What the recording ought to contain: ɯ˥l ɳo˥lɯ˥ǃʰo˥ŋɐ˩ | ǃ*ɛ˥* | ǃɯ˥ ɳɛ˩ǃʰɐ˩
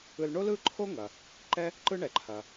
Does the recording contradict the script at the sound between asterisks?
no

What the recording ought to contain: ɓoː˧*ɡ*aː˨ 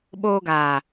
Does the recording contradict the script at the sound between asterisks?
no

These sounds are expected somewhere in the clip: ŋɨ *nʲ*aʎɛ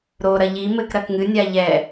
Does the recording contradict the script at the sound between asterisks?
no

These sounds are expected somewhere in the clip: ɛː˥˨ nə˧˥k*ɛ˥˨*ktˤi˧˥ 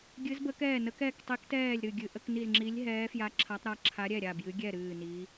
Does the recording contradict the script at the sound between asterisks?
no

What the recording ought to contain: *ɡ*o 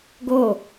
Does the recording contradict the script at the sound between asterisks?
no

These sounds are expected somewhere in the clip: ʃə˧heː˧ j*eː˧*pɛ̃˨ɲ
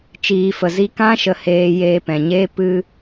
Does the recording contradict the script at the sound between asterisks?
no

